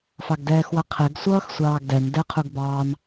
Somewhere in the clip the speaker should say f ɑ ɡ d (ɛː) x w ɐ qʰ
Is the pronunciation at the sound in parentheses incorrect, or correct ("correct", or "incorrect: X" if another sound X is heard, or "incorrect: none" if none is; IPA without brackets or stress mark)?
correct